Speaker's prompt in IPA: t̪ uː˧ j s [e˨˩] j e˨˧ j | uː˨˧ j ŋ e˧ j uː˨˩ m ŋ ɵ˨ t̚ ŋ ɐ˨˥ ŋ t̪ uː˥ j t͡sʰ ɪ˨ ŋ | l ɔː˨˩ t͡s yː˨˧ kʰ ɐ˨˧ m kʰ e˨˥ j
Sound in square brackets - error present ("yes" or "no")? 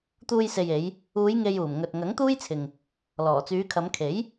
yes